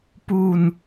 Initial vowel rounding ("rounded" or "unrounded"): rounded